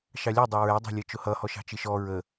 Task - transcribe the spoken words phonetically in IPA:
ʃɑlʲɑ dˤɑɹæ dˤɑ̤lʲʌt͡ʃʊhʌ hɔʃɑ̤t͡ʃɪʃɔ ɹə

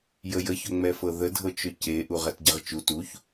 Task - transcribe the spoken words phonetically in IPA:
jəjəçɵ ŋ͡mɛfɤðə dʱɤt͡ʃɵceʔu ʁɛtɟɛʁt͡ʃu tuç

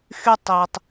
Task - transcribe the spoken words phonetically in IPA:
xy˦tˤiː˨tˤ

